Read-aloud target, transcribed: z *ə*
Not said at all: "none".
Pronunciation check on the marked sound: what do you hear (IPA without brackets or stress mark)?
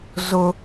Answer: ʊ